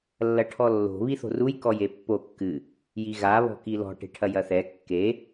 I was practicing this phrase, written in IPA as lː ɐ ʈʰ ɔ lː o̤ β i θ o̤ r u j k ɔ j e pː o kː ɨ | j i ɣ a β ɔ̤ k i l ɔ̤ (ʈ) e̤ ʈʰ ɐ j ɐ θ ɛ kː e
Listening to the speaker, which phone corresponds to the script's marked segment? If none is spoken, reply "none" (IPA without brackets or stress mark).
ʈ